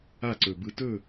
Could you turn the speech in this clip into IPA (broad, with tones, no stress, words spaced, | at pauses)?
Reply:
a˦˨ǀɵ˨bɯ˧ tɵ˦˨